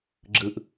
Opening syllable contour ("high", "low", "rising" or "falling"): low